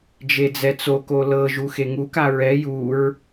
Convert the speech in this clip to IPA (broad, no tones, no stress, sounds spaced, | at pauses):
d͡ʒ e d͡z ɛ t͡s o k o l ɤ ʒ u x e ŋ u k a ɹ ɛ j u ɹ